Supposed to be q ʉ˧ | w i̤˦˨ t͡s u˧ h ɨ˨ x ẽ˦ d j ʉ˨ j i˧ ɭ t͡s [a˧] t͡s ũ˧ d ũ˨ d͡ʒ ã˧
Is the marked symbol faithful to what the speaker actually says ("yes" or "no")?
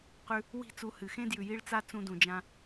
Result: yes